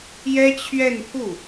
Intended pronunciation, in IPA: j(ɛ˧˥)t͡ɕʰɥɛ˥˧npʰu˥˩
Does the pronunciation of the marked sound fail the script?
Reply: yes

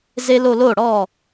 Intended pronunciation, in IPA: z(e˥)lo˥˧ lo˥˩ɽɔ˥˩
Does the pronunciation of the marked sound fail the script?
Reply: no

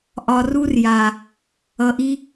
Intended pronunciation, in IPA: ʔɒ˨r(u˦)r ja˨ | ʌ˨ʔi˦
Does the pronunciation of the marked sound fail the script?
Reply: no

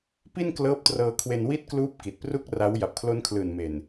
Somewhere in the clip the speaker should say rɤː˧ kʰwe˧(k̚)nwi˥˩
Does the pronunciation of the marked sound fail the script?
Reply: yes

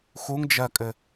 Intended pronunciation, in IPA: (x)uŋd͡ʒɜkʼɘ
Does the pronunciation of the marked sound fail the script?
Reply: no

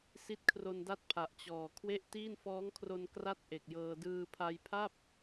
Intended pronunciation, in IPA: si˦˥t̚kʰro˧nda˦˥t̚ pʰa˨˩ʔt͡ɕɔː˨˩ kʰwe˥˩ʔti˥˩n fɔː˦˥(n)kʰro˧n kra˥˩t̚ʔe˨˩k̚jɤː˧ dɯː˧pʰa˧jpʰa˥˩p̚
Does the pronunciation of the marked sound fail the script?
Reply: yes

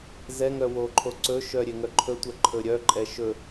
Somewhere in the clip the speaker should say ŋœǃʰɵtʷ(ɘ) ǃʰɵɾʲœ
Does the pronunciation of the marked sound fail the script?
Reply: yes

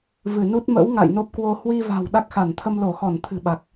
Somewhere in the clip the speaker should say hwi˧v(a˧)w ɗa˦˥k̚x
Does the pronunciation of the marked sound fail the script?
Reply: yes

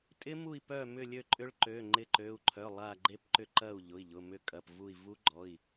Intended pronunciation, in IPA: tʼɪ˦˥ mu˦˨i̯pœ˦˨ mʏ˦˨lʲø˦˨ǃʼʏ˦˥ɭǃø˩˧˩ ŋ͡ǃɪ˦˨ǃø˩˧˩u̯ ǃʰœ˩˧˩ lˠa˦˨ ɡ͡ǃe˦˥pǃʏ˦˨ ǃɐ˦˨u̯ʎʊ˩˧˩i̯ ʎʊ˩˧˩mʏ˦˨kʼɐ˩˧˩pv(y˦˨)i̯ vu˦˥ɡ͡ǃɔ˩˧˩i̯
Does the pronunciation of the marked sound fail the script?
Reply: yes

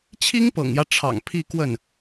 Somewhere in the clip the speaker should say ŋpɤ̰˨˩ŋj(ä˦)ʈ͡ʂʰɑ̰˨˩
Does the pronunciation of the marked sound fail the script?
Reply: no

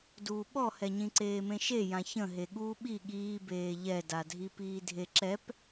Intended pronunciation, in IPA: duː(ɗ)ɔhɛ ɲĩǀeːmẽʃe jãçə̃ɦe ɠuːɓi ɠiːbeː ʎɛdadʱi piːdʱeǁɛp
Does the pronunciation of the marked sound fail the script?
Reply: yes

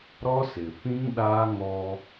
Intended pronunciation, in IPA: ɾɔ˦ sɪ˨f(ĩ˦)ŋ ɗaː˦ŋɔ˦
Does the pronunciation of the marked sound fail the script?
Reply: no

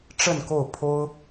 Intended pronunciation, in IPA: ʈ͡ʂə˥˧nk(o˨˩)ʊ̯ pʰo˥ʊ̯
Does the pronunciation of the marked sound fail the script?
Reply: yes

